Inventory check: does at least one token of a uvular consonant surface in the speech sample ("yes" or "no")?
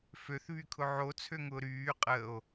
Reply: yes